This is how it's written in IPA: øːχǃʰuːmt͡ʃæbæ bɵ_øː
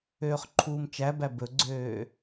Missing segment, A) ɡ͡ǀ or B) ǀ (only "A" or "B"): A